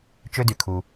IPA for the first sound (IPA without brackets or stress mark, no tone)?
t͡ʃ